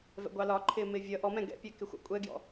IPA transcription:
v ɛ̰ ɡʷ ɑ l ɒ ǃʰ ɪː m ɪː vʲ ʌ ʔ ɔ m ɛ̃ ɡ ɛ̰ pʲ æ k ɪ xʷ ɑ̰ kʷʼ ɛ ɡ j ɔ̰

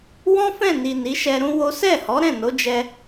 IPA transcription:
w ɔ̃˦ f ɛ̃˦˨ n i˨ n i˨˦ ʃ ɛ˧ ɾ ũ˦ w o˦ s ɛ˦˨ h ɔ˨˦ ɾ ɛ̃˦˨ n o˨˦ d͡ʒ ɛ˧

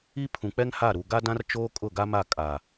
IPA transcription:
i˦ pʰ ũ˨ k͡p ɛ˦ ŋ h a˦˨ ɾ u˨ ɡ a˦ d ã˦ r t͡ʃ oː˦ kʼ ʊ˦˨ ɡ a˦ m a˦˨ kʼ a˨

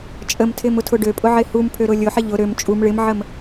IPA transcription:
t͡ʃʼ ə m tʰ ɪ m ʊ tʰ ʊ ɖ ø pʼ ʊ ʕ ɪ h u m pʰ ø ɾ ʊ lʲ ʊ ħ ɪ ʎ ʊ ɾ ø m t͡ʃʼ u m ɭ ɪ m ʕ ə m

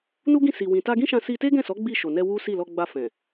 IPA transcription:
n u˦ ɡ ĩ˦˨ s i˨ w ĩ˨ t a˧ ɡ ĩ˦ ʃ ã˧ s i˧ t e˦ ɡ ɛ̃˦˨ s ɔ˨˦ ɡ͡b i˦˨ ʃ o˨ n ɛ˧ w u˦ s i˦˨ l ɔ˧ ɡ͡b a˧ f ɛ̃˨

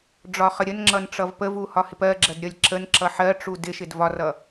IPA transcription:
ɖ͡ʐ ɒ χ ə ɾʲ ə n ŋ͡ǁ ʌ n ʈ͡ʂ ʌ v p ə v u h ɒ h ɪ p ɜ ɡ͡ǁ ɜ d ɾʲ ʌ lʲ ǁ ə n ǁ ʌ ħ ɜ ʈ͡ʂ u d ɪ ʃ ɪ d v ɒ r ʌ

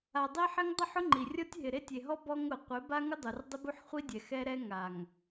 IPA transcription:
a˨ dˤ i˦ ħ ɪ˦ ŋ dˤ ʊ˦˨ ħ ʊ˦ ŋ͡ǃ i˨ rʲ ɔ˦ tʲ ɦ ɪ˨ ɾ e˦ tʲ e˨ ɦ ɔ˦ b ɔ˦ ŋ ʊ˨ qʷ e˨˦ b a˦ ŋ ʊ˦ dˤ u˨ r dˤ ɪ˦ b u˦ ħ χʷ i˦ dʲ ɛ˨ x ɛ˦ ɾ ɛ˦ ŋ a˨ ŋ

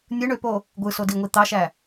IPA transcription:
nʲ ɯ ɳ ø p o | ɡʷ ɯ s o d i ŋʷ i t̪ ɑ ʃ æ

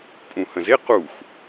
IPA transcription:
pʼ ũ h ə̃ z e q u x

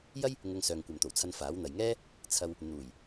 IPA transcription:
j ɐ˥ j | ŋ ʊ˧ ŋ s œː˨ ŋ kʷ ɐ˨ m t̪ o˨˩ w t͡sʰ ɐ˧ n f aː˨˥ w n̪ ɐ˨ j ŋ ɛː˥ | t͡sʰ ɐ˧ w | n̪ uː˨˩ j

